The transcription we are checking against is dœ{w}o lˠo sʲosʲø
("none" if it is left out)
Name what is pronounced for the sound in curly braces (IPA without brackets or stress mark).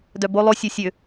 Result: b